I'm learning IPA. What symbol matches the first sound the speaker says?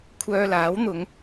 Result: kʷʰ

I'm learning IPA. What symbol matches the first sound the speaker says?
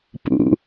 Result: p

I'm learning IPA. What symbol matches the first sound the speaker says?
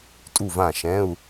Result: tʼ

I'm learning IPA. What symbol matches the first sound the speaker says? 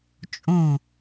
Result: t͡ʃʼ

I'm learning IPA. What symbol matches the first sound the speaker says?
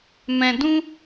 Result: m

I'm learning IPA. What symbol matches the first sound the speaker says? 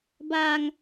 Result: b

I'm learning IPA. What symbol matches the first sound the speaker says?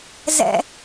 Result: z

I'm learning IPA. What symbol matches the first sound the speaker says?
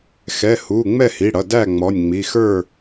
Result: x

